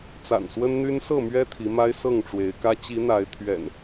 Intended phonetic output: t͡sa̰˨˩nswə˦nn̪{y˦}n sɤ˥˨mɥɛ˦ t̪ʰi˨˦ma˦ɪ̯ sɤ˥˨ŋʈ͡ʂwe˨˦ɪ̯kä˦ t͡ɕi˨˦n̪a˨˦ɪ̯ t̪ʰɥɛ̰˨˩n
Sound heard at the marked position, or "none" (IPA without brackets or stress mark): y˦